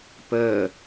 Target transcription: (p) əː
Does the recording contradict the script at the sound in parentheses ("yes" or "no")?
no